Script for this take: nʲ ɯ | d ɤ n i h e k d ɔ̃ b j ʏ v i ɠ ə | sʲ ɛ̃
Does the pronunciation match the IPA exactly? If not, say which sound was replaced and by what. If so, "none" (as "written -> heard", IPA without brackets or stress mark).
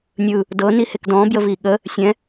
ʏ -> ə